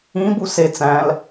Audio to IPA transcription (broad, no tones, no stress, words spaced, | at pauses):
ĩbu se t͡sæ̃l